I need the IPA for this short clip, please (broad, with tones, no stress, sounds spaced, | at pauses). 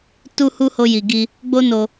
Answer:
t u˧ h u˧ h o˧ j i˨ ɡ i˧ | ɡ͡b o˦ n o˧